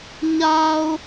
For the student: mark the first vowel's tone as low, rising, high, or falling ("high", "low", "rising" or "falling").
low